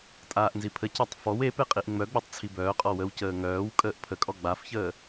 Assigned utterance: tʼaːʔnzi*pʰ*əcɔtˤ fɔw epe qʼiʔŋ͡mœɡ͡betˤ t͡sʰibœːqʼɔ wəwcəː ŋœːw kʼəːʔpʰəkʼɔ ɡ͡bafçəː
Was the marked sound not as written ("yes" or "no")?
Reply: no